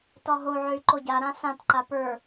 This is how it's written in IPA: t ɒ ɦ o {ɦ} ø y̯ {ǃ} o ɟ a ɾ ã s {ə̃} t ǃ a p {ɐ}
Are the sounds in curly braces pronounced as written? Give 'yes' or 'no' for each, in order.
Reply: no, yes, no, no

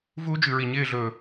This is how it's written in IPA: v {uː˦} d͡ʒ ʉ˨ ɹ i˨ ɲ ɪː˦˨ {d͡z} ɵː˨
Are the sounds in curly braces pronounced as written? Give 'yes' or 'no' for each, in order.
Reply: yes, no

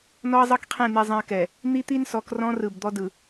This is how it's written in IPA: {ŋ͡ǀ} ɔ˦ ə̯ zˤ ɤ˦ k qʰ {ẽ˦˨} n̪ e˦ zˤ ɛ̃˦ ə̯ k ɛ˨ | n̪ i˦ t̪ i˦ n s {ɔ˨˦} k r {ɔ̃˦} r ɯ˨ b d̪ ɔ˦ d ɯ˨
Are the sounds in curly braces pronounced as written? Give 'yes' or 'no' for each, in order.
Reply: no, yes, yes, yes

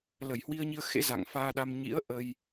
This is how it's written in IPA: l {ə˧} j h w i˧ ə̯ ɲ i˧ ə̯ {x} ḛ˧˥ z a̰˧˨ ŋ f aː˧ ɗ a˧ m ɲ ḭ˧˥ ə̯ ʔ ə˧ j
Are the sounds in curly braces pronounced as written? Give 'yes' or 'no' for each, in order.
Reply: no, yes

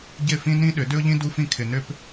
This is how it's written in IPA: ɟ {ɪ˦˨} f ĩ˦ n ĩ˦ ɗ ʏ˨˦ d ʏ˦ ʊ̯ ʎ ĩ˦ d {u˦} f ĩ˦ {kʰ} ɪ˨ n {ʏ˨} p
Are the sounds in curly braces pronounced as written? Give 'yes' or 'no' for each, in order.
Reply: yes, yes, yes, no

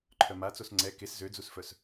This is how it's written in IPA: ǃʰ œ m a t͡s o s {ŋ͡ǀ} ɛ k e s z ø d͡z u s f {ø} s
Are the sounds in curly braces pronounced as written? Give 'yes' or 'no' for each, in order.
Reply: yes, no

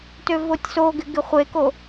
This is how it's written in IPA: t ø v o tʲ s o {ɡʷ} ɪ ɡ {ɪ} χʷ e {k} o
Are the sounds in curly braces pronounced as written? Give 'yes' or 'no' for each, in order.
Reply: no, yes, yes

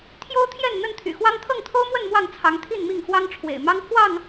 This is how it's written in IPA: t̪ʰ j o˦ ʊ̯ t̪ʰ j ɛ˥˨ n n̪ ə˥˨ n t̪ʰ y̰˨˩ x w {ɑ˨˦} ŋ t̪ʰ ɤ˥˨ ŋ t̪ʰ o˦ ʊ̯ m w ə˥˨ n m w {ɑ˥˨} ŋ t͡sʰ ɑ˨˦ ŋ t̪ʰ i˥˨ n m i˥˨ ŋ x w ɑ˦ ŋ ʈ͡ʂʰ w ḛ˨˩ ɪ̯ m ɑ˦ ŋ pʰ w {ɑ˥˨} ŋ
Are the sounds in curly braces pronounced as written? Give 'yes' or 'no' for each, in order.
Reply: no, yes, yes

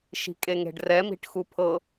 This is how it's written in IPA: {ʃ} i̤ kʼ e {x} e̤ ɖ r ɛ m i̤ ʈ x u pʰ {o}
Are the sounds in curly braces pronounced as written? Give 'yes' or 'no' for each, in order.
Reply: yes, no, no

